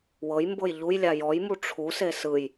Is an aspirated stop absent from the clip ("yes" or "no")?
no